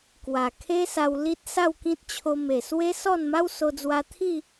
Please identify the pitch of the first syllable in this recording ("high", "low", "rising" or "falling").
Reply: low